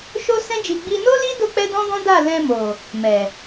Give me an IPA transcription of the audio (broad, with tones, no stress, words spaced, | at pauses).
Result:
ʃo˦sɛ̃˦d͡ʒi˧ ɡ͡bi˧no˦li˦ do˦k͡pɛ˦dɔ̃˦ɡɔ̃˦ da˦˨ lɛ̃˧mo˨ | mɛ˨